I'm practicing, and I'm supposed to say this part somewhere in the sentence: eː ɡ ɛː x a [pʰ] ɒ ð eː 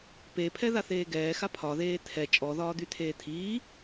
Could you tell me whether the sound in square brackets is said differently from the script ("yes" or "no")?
no